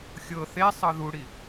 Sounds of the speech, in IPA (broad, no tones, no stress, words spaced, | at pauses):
xʲɤ θesˤɤ ðuɽi